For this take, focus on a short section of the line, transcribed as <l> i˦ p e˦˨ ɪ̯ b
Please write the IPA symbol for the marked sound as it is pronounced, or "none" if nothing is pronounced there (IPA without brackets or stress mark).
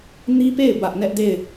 n